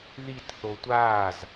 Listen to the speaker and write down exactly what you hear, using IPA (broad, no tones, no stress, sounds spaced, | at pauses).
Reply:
ð i t θ o tʷ aː z